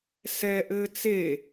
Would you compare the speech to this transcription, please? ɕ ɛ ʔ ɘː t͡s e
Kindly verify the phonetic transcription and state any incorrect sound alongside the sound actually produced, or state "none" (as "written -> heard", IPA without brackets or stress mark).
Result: ɕ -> s